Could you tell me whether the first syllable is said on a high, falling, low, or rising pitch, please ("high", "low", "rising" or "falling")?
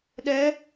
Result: rising